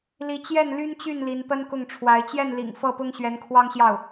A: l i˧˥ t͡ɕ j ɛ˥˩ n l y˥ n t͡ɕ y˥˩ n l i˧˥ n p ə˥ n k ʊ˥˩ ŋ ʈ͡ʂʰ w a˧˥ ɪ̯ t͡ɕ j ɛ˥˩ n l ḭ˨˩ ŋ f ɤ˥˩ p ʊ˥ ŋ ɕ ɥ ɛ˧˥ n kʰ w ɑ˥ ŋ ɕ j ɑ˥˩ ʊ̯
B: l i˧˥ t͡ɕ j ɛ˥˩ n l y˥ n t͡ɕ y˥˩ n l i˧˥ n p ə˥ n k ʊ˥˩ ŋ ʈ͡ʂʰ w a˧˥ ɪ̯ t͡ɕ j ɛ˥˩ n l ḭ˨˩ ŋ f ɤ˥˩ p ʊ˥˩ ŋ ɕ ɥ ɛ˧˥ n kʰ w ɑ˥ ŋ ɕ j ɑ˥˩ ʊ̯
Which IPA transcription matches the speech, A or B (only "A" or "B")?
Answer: A